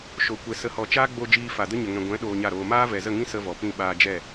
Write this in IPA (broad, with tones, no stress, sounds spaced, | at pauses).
ʃ o˨ kʷ ɛ˨ s ə˨ h ɔ˨ t͡ʃ aː˦ ɡ͡b o˧ d͡ʒ iː˧ f a˨ d ə˦ ɲ ə˨ ŋ ɛ̃˨ ɡʷ ɛ̃˨˦ ɗ oː˧ ɲ a˦˨ ɾ oː˧ m aː˦ v ɛ˨ z ə˦˨ ŋ ĩ˦ s ə˦ v ɔ˨ p ĩ˦˨ ɓ aː˧ d͡ʒ ɛ˦˨